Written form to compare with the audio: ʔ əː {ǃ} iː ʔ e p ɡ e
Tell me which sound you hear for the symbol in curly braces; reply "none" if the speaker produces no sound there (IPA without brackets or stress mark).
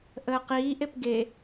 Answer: q